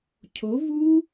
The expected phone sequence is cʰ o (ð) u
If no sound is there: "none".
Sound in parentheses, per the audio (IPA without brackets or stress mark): v